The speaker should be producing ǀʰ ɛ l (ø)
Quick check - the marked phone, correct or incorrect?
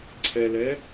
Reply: incorrect